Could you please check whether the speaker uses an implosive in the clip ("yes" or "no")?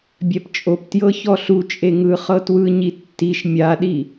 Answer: yes